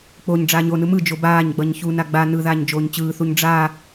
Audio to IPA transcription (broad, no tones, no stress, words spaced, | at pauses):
k͡poɲɖ͡ʐaːɲ onɯ mɯd͡ʒo baːɲɡ͡bʌɲ çuna ɡ͡ba nɯðaːɲ d͡ʒoːɲt͡ɕɯːθuɲ ɖ͡ʐa